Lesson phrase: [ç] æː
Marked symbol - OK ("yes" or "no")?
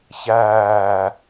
yes